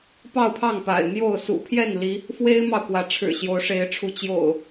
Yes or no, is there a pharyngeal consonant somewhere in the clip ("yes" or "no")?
no